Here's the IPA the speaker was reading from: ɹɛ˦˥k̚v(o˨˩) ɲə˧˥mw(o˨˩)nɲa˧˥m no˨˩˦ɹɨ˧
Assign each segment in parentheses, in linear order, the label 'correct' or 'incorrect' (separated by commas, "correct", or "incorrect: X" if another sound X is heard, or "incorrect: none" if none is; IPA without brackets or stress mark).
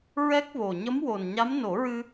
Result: correct, correct